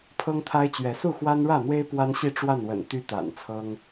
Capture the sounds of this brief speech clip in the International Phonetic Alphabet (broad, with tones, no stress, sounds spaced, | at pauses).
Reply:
pʰ ɤ˦ ŋ t̪ʰ a˦ ɪ̯ t͡ɕ ɥ ɛ˨˦ s u˥˨ x w a˦ n ɻ ä˥˨ n̪ w e˦ ɪ̯ p w a˦ n ɕ i˥˨ ʈ͡ʂ w a˥˨ n w ə̰˨˩ n t̪ y˦ t̪ a̰˨˩ n t͡sʰ ɤ˦ ŋ